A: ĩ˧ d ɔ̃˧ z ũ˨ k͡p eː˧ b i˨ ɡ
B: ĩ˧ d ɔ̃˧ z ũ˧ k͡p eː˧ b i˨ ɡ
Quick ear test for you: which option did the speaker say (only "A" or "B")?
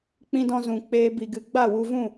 A